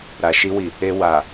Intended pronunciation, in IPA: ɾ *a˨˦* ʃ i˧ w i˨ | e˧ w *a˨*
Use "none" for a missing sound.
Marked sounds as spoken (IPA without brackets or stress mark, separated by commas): a˨, a˨